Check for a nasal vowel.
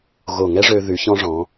present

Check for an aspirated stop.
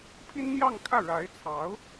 present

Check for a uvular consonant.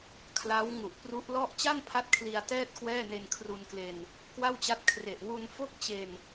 absent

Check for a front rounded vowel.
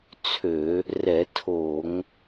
present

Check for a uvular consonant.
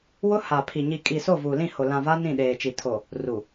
absent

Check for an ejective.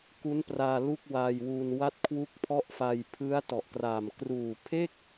absent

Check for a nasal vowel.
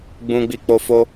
present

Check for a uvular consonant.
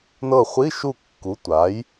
present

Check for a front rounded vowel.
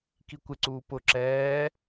absent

